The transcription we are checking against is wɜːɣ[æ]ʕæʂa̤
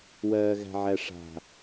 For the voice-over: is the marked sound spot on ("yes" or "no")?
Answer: no